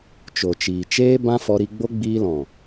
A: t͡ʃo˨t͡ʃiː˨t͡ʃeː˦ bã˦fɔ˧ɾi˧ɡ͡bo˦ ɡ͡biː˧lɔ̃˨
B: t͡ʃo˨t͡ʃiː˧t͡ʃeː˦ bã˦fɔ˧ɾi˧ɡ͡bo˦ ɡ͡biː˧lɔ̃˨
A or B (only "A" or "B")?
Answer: A